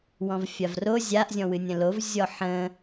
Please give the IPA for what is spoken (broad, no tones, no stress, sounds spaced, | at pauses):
w ɔ̃ v fʲ a v r o zʲ a ʔ zʲ ɔ̃ w ɨ nʲ ə̃ l o v zʲ ɔ ħ ə̃